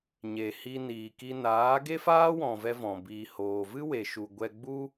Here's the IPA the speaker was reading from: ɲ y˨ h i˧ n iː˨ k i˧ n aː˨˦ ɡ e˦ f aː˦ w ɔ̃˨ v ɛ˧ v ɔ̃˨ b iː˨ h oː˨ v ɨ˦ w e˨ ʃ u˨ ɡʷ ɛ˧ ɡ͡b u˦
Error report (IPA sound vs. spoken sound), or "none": y˨ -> e˨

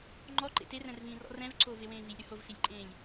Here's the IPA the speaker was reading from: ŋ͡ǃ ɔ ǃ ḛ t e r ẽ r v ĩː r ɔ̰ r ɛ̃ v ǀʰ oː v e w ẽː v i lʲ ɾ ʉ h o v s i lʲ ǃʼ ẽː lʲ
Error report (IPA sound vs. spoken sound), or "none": ẽ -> ɛ̃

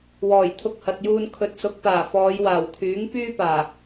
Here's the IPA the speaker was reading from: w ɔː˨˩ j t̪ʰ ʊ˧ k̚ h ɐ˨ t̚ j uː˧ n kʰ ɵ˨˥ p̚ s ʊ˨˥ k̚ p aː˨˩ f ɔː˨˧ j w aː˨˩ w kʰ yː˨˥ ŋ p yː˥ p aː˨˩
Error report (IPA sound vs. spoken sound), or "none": p̚ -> t̚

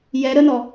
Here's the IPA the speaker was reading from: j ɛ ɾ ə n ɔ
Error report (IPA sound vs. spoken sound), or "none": none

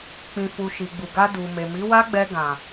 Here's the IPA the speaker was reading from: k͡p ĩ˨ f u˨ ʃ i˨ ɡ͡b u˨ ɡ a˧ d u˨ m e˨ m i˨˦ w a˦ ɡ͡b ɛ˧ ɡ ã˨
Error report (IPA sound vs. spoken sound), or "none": none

